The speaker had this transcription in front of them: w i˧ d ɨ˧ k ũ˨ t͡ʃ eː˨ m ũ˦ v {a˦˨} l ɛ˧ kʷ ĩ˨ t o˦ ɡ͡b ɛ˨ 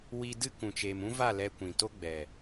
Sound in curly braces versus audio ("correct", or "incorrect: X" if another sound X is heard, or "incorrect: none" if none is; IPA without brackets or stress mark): correct